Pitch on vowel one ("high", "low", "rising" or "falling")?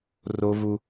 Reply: high